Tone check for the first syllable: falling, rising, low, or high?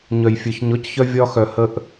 low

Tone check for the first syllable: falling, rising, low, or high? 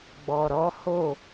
low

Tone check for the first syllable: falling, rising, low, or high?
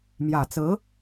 low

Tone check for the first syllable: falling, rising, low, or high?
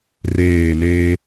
falling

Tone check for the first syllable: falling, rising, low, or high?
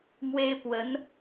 high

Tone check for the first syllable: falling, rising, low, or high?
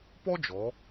high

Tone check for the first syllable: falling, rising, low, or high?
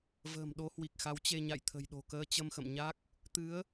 low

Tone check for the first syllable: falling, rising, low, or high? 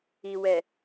low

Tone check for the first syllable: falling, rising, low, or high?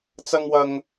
high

